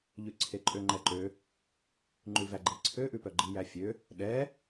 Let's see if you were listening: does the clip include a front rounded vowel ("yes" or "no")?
yes